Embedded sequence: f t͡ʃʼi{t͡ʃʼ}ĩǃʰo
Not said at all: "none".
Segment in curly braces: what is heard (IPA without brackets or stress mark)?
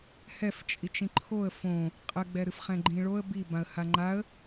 t͡ʃ